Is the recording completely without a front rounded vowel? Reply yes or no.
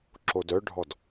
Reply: no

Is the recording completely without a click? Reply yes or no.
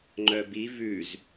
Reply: no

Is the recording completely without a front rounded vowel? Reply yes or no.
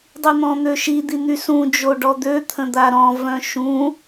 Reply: no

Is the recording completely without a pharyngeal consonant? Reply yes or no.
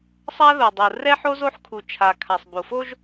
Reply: no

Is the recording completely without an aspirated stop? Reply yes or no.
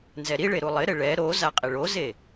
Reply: yes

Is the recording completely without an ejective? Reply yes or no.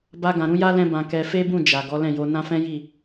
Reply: yes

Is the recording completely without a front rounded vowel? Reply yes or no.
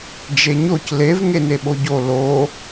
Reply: yes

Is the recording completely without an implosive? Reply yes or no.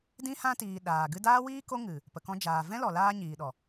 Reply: no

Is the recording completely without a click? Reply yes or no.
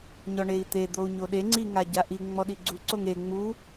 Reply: no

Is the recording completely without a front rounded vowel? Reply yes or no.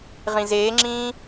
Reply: yes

